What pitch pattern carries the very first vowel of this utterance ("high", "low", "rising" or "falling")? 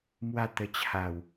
falling